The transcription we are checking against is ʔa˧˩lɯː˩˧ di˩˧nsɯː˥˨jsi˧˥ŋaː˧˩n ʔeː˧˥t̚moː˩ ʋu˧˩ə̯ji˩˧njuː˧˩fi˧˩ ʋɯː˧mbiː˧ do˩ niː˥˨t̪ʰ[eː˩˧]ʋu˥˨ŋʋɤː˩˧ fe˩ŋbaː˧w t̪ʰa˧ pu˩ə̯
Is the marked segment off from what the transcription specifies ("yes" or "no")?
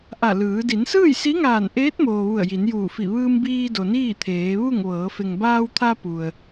no